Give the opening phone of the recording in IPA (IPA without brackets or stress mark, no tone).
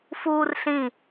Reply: f